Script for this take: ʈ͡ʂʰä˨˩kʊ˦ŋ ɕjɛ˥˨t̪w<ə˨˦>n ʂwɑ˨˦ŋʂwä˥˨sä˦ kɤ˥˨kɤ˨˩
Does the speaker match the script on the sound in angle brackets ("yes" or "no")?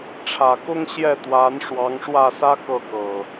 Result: no